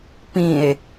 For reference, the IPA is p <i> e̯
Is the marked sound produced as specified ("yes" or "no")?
no